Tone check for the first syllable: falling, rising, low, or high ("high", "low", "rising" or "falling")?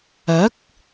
rising